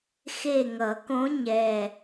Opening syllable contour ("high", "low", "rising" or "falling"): falling